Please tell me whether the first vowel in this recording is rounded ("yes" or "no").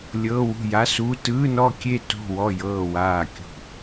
no